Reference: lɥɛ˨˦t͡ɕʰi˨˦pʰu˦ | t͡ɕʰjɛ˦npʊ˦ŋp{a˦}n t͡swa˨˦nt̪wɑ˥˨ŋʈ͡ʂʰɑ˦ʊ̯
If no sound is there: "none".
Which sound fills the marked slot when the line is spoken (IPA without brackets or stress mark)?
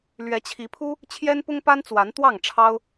a˦